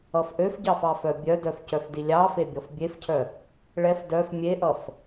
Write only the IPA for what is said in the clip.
ʌfʔøfɟɑf ɑfœbʲœdœf cœfdilʲɑfe bʲɔfbʲefcʰœ | ɭɛf dœf mʲeʔʌf

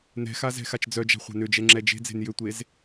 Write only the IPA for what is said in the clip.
nɛ̤xa zɛ̤xat͡ʃd͡zœd͡ʒa̤ χʷa̤nʏd͡ʒɛ ŋ͡ǁɛd͡ʒe̤d͡ze̤n jʏtʷez

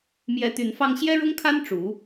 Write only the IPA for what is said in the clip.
mjɛ˧˥ t̪y˧˥nfɑ˥ŋ ɕjɛ˥ɻʊ˥ŋkʰa˥n ʈ͡ʂu˧˥

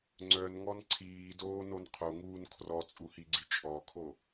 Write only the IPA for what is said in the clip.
ŋ͡ǀœnŋɔn ǀʰiːdoːnon qʰoŋuːn kʰrɔt͡sʼuhiɡ͡ǀi t͡ʃʼɔkʰo

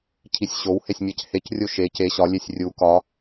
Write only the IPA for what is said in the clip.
cʰisʲɕow hesʲmʲæchec rʲoʃe ce ɕɒ lʲesʲrʲu kɒ

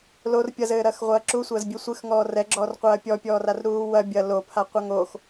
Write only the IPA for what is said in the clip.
lor pʲɐzɘːɾɐːxʁʷɐː ǁusʷɐːzbʲɘ sʷɨxŋɔː rɛɡ͡ǁɔːr qʷɐːpʲɔpʲɔːrar ɾuːwɐ bʲɐ lopʰaqʷɐ ŋox

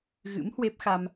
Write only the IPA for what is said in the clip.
ɣɨ̰˧˥mhwe˦˥p̚xa˧m

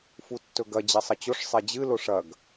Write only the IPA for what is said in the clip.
futːɵɡɐ d͡ʑesˤɐt͡ɕoʂ sˤed͡ʑɨ loʂɐɡ

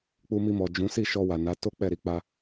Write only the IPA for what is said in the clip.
k͡pu˧mi˧mɔ˨ d͡ʒũ˨˦ si˦˨ʃɔ˧wa˨ na˨˦ to˦k͡pɛ˦˨ɾi˧ k͡pa˧

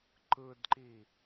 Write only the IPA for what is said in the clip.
ǃɯdǃi

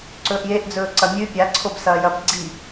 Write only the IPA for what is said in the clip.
ǀɵːʔjeʔd͡zɵː ǀɐmʲʉ pʲaǀʰob sɐːjɐb ɡ͡ǀi

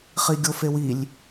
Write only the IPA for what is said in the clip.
χiɡʲofewilʲ

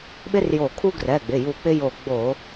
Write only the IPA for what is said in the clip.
ɓɪ˦rjo˧˩ kʰu˦ɡrɛ˩˧˩ɡ͡bɪ˩˧˩ju˧˩ k͡pɪ˦jo˧˩ ɡ͡bo˧˩˧

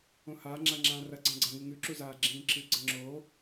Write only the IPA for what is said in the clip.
õhaːŋ͡ǁa ŋ͡ǁãːrɐɡ͡ǀã ɡ͡ǀaŋɨŋʉǁu zaːɡ͡ǁĩːǁɨɡ͡ǀɐ ŋ͡ǁoː

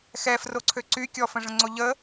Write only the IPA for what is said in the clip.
xɛfroǀʰø ǀy kʲɔfə̃ʐə̃ŋ͡ǀo ʎə

